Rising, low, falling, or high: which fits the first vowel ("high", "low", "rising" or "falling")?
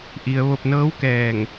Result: low